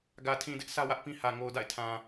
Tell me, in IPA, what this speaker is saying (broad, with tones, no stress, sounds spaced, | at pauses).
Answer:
ɡ ä˨ tʰ ĩ˨ d ɪ˦ ʔ s ä˦ w ä˦ ʔ p ĩ˦ h ä˨ ŋ o˨ ʊ̯ d a̰˦˨ ɪ̯ tʰ ã˨